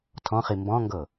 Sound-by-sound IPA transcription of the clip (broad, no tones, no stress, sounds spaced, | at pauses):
tʰ ɔ̃ χ i m b ɔ̃ ŋ ɡ ɤ